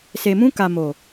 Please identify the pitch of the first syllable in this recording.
low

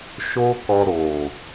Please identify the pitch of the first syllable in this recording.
high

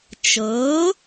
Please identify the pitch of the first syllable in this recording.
rising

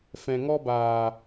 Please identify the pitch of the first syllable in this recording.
low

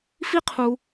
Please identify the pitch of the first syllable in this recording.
high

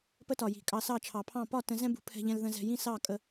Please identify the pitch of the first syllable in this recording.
high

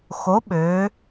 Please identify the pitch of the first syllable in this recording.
rising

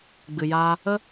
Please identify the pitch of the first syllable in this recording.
low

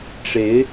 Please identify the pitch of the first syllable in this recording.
rising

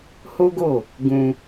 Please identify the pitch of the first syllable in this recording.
high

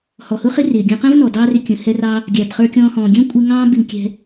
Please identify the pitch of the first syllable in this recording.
low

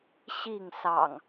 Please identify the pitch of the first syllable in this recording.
falling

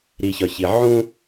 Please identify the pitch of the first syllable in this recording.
low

